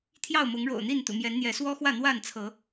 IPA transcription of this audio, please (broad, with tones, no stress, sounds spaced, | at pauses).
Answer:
t̪ʰ j ɑ˥˨ ʊ̯ m ʊ˨˦ ŋ ɻ o̰˨˩ ʊ̯ n̪ i˥˨ n t̪ ṵ˨˩ m j ɛ˨˦ n n̪ j ɛ˨˦ s w ɔ˦ x w ä˥˨ n̪ w a˥˨ n t͡sʰ ɤ˨˦